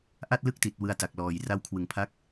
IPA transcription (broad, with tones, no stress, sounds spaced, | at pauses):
ʔ a˥˩ t̚ l ɯ˥˩ k̚ t i˨˩ t̚ w ɯ˧ a̯ t a˨˩ k̚ l ɔː˨˩ j r a˦˥ w kʰ w ɯ˩˦ ŋ pʰ a˦˥ k̚